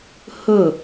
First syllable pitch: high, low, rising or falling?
falling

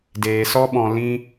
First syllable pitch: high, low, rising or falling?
low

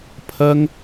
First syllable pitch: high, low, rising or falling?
high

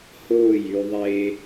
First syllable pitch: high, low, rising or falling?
falling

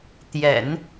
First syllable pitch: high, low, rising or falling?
low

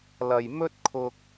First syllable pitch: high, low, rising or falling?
low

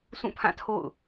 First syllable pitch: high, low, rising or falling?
falling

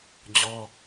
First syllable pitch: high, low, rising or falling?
high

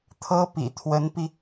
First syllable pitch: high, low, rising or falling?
high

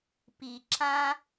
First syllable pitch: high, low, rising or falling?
low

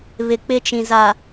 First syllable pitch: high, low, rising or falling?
low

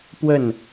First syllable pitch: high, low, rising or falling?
falling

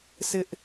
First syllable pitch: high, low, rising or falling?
high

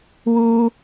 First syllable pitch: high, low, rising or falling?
high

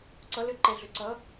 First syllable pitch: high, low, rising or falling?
rising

